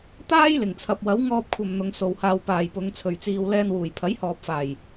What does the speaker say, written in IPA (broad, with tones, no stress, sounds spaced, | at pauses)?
t̪ aː˥ j l ɪ˨˩ ŋ t͡sʰ ɐ˨ p̚ w ɐ˨˥ w ŋ ɔː˧ p̚ kʷʰ ɐ˨ m n̪ ʊ˨˧ ŋ s o˨ w h aː˧ w p aː˨ j p ʊ˨˧ ŋ t͡sʰ ɵ˨ ɥ t͡s iː˧ w l ɛː˧ n w uː˨˩ j pʰ ɐ˨˥ j h ɔː˨ p̚ f aː˨˩ j